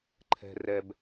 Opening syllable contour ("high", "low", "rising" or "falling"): low